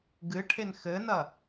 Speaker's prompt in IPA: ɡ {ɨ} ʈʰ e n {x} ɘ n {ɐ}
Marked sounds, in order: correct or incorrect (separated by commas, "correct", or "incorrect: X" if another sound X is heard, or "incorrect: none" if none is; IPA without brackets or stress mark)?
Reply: correct, correct, correct